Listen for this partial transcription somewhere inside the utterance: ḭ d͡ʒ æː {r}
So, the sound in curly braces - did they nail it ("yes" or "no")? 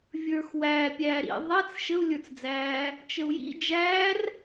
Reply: yes